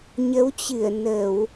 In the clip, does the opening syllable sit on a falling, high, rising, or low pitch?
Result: rising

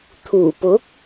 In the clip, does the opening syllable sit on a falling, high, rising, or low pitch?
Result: low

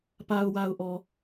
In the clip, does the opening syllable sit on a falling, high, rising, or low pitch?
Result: low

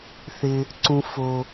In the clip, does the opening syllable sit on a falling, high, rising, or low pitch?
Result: low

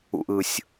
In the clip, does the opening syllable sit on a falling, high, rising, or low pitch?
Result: low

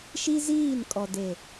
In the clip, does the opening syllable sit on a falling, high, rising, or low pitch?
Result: high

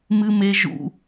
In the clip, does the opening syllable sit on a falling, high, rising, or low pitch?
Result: high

